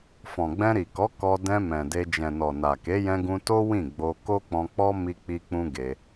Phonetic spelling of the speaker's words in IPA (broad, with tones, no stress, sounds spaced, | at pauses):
f ɔ̃˨ ɡ͡b ɛ̃˧ ɾ i˨ k ɔ˨˦ k ɔ˧ d ɛ̃˧ m ɛ̃˨ d e˧ d͡ʒ ɛ̃˨ n ɔ˨ n a˨ k e˨˦ j ɛ̃˧ ɡ ũ˧ t o˦ w ĩ˦˨ ɡ͡b o˧ k o˦ k͡p ɔ̃˧ k͡p ɔ˦ m i˦ k͡p i˦ k͡p ũ˦ ɡ e˧